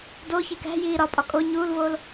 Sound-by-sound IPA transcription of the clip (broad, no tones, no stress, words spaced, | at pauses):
do çekæ̤ jiːɾɒ pʼɒkʼo ɲuːlvoːl